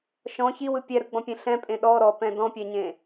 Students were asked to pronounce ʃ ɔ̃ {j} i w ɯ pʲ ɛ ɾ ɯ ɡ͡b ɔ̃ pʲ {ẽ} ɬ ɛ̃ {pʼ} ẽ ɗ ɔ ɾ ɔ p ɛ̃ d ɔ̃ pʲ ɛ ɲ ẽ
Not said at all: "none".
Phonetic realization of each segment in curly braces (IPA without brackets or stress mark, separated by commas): ç, ẽ, pʼ